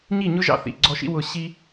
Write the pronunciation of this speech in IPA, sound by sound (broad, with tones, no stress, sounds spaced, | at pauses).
ɲ i˦˨ ɲ ʊ˦ ʒ ɑ̰˧ θ ḭ˨ ɡ͡ǀ ɔ˧ ʃ ḭ˦ w ʊ˧ ɕ i˦